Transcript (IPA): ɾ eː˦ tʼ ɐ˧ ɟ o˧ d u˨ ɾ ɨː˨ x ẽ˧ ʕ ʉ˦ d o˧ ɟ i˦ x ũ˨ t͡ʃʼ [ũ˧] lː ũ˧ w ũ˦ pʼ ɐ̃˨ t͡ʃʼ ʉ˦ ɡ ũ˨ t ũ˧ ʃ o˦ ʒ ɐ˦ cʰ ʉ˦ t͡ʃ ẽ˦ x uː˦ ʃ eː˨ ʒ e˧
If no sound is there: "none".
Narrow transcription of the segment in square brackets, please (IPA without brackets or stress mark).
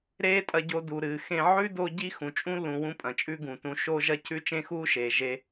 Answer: ũ˦